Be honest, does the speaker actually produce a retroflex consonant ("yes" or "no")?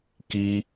no